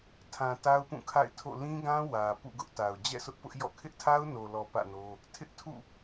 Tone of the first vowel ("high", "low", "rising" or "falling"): low